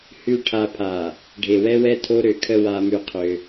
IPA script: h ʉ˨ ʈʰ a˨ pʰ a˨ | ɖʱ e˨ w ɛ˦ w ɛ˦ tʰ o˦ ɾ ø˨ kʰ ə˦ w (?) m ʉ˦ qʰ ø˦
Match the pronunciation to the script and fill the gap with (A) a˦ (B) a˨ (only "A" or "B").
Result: A